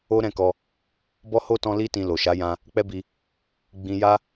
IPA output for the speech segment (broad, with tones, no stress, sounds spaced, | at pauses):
o˦ ɾ ɛ̃˦˨ k ɔ˧ | b ɔ˦ h o˦ t ɔ̃˦ l i˦ t ĩ˧ l o˨ ʃ a˨˦ j ã˧ | k͡p ɛ˦ b i˧ | ɡ͡b ĩ˧ j a˦